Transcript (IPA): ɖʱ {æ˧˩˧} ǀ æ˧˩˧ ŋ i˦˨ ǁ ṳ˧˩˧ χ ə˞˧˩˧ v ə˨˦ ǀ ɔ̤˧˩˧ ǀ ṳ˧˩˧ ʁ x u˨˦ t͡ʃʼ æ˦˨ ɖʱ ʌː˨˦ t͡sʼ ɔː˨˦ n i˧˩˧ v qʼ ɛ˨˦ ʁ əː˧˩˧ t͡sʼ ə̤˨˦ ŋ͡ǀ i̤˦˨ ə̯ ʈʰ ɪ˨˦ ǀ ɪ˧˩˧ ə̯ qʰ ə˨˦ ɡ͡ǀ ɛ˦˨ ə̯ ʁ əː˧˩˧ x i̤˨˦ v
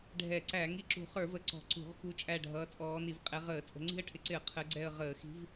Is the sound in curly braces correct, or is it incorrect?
incorrect